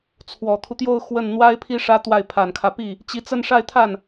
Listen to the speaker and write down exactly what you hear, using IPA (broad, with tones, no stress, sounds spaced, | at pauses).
t͡sʰ w ɔ˨˩ t̪ʰ u˦ t̪ j o˥˧ ʊ̯ x w ə˥˩ n n̪ w a˥ ɪ̯ pʰ i˥ ʂ ä˥ t̪ w a˥˩ ɪ̯ pʰ a˨˩ n kʰ ä˦ p i˥˩ | t͡ɕ i˧˥ t͡s ə˥˧ n ʂ a˥˧ ɪ̯ t̪ʰ a˥˩ n